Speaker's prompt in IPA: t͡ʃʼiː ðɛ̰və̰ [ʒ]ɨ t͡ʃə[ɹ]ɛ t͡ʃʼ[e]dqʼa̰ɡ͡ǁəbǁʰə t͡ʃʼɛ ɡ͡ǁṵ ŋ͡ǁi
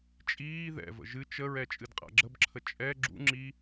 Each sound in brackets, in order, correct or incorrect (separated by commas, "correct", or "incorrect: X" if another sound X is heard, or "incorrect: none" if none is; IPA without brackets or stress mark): correct, correct, incorrect: ɨ